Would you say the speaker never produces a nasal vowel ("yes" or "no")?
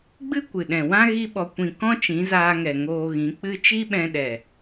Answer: no